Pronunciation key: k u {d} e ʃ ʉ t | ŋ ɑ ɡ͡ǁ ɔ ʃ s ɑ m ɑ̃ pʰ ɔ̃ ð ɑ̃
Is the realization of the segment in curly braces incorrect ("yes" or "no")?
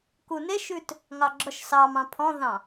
yes